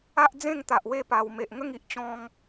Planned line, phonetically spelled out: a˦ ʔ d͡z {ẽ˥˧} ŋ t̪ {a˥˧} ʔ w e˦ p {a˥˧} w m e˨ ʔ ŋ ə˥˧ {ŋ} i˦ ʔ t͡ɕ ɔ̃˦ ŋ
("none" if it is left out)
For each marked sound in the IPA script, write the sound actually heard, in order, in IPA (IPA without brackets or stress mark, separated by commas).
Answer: ẽ˥˧, a˨, a˨˩, ŋ